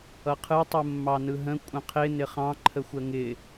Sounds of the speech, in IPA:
ʌqʰɯ tˤɯmːɑnɯɦə̃ kʷʼə̃qʰɪ nɪχɑ̃ ǃʰəxʷəŋɪ

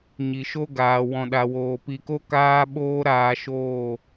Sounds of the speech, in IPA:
ɲi˨ʃo˦ɡaː˨ wɔ̃˨ɗa˨woː˨ pi˨ko˦ kaː˦ɓoː˦ ɾaː˧ʃoː˦˨

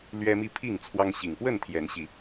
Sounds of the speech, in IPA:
lɥɛ˦mi˥˨ pʰi˥˨ŋt͡sʰwɑ˦ŋ ɕi˨˩ŋpwə˥˨nt̪ʰjɛ˨˦nɕi˨˦

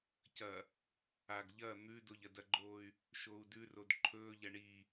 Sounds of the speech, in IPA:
cɐ | aɡ ʎɐ n̪ʉdoʎ ɐdɐɡ͡ǃoːy̯ | ʃoːu̯dʉrod ǃʰɵːʎɐ ɳi

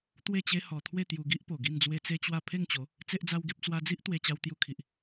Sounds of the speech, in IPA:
t̪we˥˧t͡ɕe˦ hɔ˧ t̪ʰwe˥˧t̪ju˧ɡi˦ʔpo˨˩ ɡi˥˧nd͡zwe˦t͡se˦t͡ɕwa˥˧ pʰe˥˧ŋt͡ɕo˨˦ | t͡se˦ʔd͡za˦wɡe˦p̚ t͡swa˧d͡zi˦ʔ t̪we˧t͡ɕa˧w t̪ju˧kʰi˨ʔ

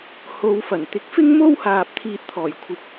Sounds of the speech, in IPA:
ho˨˧wfɐ˨˩n t̪ɪ˨˥k̚fɪ˥ŋmo˥whaː˨p̚ t̪ʰiː˧t̚t̪ʰɔː˨˩jkʷʰɪ˨k̚

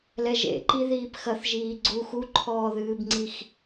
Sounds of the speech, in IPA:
lɛʒḛǃi ðiːpxɐθʒiː ɡ͡ǀux uǃʰɔːðɨːbŋ͡ǀix

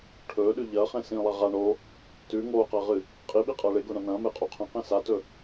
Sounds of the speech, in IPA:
ʈʰɵːɗʉ ʎɐːχẽ sĩlˠa ʁa ɳo | tʉ ŋoːqɐːʁɨ | qʼiɓiqʼɐː ɭeɡoɳã nɐ̃ːmeqʼu qʰɐ̃qẽ satɵ

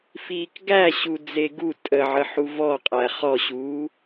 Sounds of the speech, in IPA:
fiːkɡæɕu d͡zeɡu tʼəʕə ħuvɔqʼæ χɔɕuː

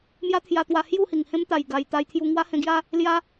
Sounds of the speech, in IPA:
mja˦t̪ʰja˧t̪wa˧ hju˥˧ hi˨˩ŋhẽ˦mt̪a˨˩j ɡa˨˩j t̪a˧jt̪ʰju˧ ŋwa˦hẽ˧ɡja˦ | lja˦

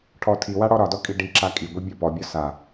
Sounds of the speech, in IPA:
ʈʰɔ tʰiwa ɽɔɾɒdɔ kʼiɖiǁa kʼiɡʷi bʲɒpɔbʲɒ sa

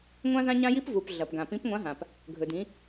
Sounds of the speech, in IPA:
ŋʷã˥zã˥ɲã˥ji˥p vu˩p ɮɐ˩pɡã˩ pĩ˧˥pŋʷã˧˥ɦã˩p | ɡʱɵ˩dĩ˩˧

